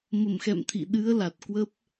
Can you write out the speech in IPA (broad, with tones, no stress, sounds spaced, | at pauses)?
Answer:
m ə˧˩ m x ɛ̰˧˨ m t̪ʰ ḭ˧˨ ɗ ɨ˨˦ ə̯ l a˨˩ t̚ k w ə˦˥ p̚